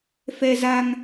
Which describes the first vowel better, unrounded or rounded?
unrounded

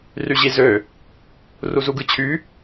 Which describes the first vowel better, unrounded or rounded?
rounded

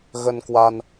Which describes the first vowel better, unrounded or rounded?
unrounded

